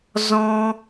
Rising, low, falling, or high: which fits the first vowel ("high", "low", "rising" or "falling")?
high